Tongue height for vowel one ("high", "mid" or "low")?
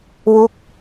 high